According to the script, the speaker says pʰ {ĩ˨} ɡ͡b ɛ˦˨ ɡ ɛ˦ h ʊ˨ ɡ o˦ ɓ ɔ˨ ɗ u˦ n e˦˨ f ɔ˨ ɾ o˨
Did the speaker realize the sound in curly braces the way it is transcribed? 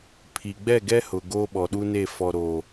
no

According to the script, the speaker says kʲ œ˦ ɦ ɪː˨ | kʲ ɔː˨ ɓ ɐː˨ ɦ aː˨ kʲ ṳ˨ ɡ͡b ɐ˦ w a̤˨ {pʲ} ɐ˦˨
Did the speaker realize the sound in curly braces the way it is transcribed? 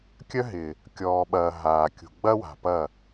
no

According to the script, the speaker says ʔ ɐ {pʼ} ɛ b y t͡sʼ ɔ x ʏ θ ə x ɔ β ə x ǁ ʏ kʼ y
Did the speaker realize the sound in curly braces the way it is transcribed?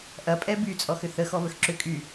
yes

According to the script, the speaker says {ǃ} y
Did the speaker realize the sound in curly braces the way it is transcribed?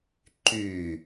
yes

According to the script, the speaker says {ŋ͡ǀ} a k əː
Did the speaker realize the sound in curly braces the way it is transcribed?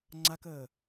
yes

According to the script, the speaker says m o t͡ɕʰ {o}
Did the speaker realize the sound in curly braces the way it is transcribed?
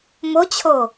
yes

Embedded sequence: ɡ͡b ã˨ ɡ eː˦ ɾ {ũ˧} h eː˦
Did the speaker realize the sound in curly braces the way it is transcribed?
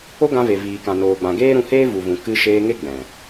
yes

